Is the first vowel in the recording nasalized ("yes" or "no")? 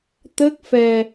no